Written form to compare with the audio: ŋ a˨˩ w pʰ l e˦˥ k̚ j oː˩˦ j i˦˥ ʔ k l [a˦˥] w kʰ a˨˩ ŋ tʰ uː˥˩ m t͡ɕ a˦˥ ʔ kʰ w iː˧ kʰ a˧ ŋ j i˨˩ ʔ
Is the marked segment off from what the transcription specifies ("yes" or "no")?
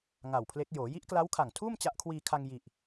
no